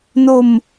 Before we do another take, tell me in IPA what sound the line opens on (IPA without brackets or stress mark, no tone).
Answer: n